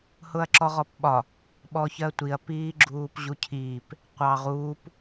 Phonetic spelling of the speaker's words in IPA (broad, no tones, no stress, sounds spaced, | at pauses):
h ʊ ɐ̯ ǁ ɔ ʁ ɔ p ɓ ɒ | ɓ ɔ ç ɜ tʷ i ɐ̯ p iː ɡ͡ǁ uː p ʑ u cʰ iː p | qʷ ɑ ʁ uː p